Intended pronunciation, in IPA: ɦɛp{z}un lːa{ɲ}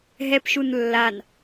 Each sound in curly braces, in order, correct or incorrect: incorrect, incorrect

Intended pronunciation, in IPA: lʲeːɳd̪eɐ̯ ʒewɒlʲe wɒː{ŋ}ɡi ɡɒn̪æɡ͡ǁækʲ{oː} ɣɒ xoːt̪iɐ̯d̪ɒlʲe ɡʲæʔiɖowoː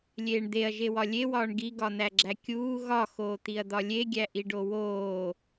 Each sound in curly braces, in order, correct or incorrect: incorrect, incorrect

